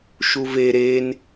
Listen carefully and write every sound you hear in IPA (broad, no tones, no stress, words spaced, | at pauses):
ʃuve ɾen